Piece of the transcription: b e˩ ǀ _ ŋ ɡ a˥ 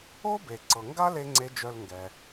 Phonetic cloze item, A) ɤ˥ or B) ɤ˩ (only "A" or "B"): B